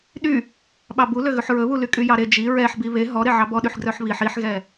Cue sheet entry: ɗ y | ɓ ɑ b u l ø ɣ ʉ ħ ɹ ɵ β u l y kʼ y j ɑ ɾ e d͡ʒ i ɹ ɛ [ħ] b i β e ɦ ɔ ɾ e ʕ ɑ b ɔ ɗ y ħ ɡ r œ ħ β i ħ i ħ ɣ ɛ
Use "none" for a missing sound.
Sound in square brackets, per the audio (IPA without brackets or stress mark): ħ